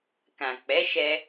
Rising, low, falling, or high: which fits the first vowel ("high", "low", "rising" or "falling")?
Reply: low